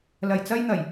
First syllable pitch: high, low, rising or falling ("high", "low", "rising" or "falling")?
low